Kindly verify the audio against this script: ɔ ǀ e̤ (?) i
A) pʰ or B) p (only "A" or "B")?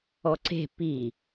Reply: B